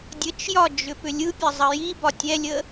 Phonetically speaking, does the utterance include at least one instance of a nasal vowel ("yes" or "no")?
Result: no